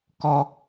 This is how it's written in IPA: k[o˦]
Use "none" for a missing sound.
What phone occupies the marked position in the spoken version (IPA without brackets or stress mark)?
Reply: ɔ˦